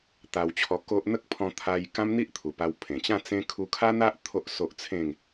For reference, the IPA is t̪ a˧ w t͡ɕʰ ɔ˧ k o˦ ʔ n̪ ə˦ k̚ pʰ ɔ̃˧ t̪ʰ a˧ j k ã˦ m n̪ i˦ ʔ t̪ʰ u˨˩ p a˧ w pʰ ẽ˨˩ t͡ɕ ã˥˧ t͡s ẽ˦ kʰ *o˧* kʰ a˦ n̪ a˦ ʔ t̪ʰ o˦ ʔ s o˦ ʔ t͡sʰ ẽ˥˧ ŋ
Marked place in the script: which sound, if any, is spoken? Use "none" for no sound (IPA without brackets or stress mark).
u˧